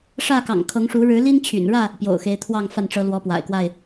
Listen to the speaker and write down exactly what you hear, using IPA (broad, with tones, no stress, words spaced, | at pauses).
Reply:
ʂä˥˨kɑ̰˨˩ŋkʰɤ˨˦ŋʂu˨˦ ɻɻ̩˨˦li˦nt͡ɕʰy̰˨˩nɻä˥˨ | pjo̰˨˩ʊ̯xe˨˦ɪ̯t̪ʰwɑ˥˨ŋ fa˥˨nʈ͡ʂɤ˨˦ lwɔ˨˦pwa̰˨˩ɪ̯kwa˥˨ɪ̯